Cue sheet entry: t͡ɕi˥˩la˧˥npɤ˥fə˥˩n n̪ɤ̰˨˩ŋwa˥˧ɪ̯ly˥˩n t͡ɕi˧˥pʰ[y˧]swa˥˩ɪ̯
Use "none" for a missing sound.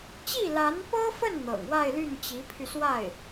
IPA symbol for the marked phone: y˧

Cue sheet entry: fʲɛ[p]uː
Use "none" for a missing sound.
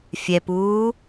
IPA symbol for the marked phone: p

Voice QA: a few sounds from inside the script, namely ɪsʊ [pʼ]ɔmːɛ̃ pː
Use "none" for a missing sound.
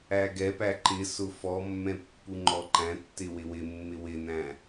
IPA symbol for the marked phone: f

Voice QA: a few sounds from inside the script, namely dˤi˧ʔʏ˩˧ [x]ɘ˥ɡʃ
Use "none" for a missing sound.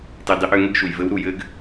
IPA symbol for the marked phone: ŋ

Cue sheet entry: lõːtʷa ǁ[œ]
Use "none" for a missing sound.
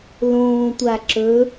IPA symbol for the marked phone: ɵ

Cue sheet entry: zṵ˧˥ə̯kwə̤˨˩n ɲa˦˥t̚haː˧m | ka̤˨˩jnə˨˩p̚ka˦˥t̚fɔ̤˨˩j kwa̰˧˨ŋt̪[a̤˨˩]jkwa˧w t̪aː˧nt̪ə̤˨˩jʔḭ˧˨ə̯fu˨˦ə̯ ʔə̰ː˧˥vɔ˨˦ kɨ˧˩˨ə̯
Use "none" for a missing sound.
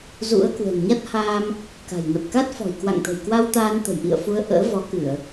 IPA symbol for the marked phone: ə̤˨˩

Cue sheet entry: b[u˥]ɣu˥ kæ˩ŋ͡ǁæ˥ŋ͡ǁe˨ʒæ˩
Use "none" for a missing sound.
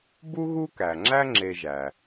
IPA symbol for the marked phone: u˥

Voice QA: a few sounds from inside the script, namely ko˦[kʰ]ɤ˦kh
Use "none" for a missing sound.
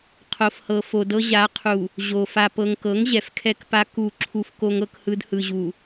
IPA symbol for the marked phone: ŋ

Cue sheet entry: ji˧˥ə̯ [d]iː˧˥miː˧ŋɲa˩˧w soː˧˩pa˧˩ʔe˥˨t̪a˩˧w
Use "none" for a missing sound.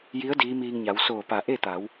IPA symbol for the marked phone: d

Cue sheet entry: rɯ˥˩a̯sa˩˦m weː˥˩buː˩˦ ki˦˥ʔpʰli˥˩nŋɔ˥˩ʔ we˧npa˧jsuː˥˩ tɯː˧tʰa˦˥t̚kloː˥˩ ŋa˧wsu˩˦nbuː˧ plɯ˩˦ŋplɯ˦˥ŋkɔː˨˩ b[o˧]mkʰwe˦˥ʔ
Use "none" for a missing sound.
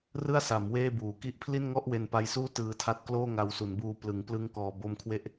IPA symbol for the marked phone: o˧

